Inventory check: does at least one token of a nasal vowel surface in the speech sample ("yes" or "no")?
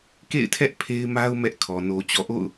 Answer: no